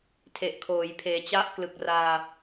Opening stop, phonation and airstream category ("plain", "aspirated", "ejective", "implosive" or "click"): aspirated